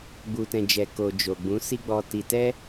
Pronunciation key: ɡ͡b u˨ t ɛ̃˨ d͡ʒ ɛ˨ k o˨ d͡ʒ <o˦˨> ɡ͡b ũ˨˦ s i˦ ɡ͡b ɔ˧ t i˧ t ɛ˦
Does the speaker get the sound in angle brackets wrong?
yes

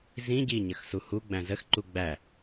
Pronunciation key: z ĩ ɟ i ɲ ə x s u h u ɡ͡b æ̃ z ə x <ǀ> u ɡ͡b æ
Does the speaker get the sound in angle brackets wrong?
yes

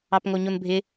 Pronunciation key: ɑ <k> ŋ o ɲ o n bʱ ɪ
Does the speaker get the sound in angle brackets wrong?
yes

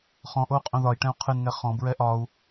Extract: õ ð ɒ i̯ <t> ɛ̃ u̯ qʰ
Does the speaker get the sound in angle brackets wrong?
yes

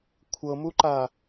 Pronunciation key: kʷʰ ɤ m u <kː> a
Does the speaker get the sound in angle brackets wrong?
yes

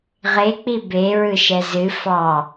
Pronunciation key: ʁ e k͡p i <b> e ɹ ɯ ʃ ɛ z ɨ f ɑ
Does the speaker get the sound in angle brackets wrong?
no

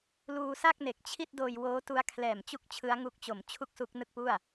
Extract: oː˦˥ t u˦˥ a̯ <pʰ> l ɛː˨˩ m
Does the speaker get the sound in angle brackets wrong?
yes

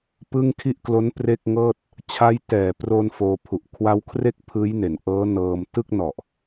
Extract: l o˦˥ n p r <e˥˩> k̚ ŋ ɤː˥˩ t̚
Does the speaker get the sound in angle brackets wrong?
no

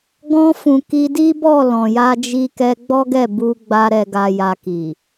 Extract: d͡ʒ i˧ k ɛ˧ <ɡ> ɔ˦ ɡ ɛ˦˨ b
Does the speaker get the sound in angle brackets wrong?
yes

